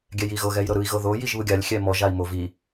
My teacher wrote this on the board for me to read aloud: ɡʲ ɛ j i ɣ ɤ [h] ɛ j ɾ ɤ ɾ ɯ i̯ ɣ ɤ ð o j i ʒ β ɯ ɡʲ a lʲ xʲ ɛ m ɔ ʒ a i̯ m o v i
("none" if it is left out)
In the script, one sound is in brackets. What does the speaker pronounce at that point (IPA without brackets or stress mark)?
ɣ